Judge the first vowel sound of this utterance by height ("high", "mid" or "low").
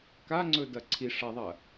low